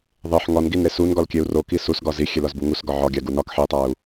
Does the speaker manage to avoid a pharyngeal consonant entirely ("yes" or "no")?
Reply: no